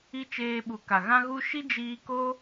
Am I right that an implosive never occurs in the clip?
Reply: no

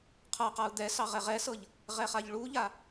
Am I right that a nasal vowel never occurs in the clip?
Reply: yes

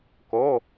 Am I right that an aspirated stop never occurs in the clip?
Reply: yes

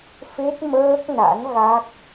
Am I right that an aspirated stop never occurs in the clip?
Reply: yes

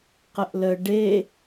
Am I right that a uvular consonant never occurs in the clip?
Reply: no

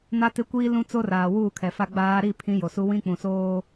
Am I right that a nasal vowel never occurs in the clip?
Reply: no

